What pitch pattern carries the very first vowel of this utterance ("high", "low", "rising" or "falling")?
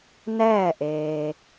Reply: falling